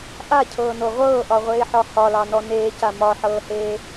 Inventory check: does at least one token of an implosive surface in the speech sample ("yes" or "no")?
no